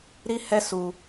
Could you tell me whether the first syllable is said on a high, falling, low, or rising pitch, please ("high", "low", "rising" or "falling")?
high